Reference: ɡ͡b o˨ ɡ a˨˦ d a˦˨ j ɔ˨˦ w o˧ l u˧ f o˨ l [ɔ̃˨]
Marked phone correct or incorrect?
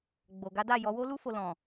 correct